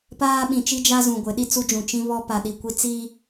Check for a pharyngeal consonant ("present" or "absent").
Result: absent